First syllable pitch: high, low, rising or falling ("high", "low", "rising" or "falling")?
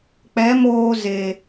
rising